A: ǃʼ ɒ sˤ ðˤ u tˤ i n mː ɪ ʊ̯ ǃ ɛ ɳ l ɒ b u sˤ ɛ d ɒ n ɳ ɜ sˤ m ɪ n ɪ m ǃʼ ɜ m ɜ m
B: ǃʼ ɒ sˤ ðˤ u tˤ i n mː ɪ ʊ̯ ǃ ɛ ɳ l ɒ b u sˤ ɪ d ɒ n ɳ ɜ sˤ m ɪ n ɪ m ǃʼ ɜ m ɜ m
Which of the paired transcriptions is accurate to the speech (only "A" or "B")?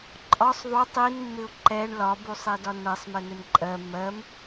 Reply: A